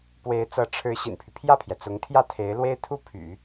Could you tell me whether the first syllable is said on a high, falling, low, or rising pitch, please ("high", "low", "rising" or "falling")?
rising